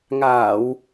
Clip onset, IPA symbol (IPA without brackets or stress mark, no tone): ŋ